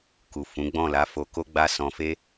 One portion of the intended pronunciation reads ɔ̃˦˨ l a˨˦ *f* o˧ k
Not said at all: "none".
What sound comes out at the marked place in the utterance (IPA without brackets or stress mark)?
f